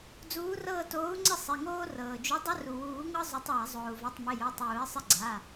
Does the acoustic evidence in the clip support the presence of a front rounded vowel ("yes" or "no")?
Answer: no